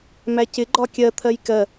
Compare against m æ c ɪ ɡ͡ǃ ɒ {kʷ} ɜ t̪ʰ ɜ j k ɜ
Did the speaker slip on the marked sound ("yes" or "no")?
yes